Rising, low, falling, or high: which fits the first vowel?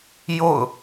falling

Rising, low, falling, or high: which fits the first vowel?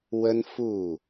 high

